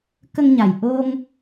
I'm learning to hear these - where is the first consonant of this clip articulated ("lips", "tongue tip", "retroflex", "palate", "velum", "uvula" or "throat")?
velum